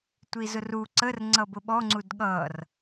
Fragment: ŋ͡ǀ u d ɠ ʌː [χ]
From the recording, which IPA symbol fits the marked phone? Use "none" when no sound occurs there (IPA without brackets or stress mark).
r